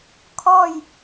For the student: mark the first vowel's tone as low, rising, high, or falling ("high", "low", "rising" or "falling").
falling